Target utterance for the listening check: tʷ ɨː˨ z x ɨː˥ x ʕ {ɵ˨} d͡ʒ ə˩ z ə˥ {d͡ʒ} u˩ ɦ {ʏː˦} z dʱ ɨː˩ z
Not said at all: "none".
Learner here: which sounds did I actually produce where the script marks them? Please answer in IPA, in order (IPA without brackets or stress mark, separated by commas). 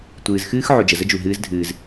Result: o˨, d͡ʒ, ɨː˦